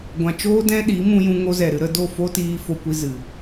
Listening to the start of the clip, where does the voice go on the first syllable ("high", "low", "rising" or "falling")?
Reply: low